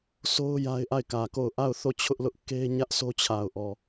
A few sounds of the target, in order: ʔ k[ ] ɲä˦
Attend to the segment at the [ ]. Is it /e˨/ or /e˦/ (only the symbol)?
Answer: e˦